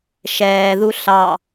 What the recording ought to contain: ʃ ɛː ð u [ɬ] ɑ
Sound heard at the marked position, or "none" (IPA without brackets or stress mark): ɬ